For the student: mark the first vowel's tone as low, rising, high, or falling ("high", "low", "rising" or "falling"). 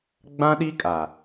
high